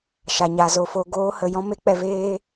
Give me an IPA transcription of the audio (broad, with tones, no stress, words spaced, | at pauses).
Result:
ʃa˨ɲa˨ zo˨fo˨ ɡoː˧hə˨jɔ̃˦ me˨˦k͡pɛ˨ veː˦